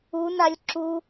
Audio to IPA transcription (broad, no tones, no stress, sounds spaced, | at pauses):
u n a lʲ ǁ u